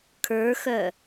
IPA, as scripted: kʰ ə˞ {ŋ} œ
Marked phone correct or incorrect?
incorrect